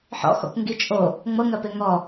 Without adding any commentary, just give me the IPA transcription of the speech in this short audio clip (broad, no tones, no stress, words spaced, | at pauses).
ħɔ̰xɔ̰kʷ ŋɡit͡ʃʼo | ŋ͡mɤŋɜpe ŋɔ